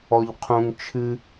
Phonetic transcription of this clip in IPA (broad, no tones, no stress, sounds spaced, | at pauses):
ɔ ʎ qʰ ũ ŋ t͡ʃʰ ɨ